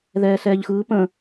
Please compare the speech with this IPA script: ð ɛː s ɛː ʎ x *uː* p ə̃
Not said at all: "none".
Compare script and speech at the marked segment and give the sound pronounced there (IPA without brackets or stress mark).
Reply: ɯː